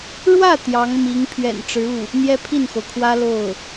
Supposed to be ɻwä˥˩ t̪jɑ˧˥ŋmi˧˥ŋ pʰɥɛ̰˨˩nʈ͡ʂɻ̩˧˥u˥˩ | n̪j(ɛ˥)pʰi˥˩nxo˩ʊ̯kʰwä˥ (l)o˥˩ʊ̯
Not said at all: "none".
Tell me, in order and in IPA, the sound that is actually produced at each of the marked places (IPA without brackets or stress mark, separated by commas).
ɛ˥, l